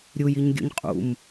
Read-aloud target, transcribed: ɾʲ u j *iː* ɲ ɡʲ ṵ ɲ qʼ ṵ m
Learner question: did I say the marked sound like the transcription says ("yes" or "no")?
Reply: no